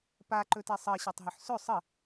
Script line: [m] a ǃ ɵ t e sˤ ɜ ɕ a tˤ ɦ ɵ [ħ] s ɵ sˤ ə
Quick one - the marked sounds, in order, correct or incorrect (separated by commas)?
incorrect, correct